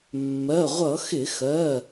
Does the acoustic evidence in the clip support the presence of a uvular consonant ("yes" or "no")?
yes